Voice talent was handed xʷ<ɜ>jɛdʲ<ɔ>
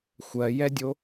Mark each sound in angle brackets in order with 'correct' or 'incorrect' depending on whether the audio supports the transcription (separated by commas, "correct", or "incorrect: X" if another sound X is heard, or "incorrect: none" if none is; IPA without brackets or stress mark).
correct, incorrect: o